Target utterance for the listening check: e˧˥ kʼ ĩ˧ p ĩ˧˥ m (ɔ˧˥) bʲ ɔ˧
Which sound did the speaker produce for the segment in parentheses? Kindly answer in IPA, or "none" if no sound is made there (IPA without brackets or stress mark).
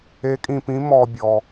ɔ˧